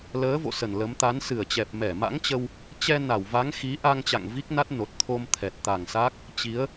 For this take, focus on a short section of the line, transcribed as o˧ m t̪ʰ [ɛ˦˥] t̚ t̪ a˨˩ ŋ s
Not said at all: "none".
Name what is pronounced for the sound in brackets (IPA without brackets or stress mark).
ɛ˨˩